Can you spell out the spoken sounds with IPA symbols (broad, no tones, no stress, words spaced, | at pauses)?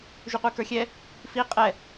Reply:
ʒʉqʷekə˞xʲɛ | fi qʼɛ